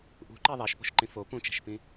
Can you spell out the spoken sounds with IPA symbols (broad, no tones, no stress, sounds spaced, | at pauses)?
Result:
ʔ ṳ ǃ e ðˤ æ ʃ p o̤ ʃ ǃ ĩ f o p ũ t͡ʃ æ̤ ʃ p ĩ